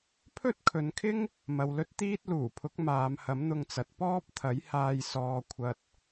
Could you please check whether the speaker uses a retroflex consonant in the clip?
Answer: no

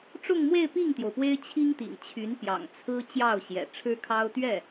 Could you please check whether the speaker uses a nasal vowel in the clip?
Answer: no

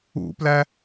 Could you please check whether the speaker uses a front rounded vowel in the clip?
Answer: no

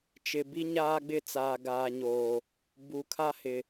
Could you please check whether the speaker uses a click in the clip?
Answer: no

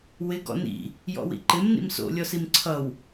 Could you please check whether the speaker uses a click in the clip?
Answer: yes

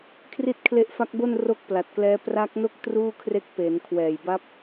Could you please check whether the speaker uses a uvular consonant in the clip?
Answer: no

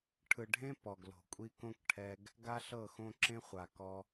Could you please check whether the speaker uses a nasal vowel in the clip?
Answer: yes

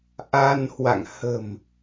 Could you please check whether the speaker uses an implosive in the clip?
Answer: no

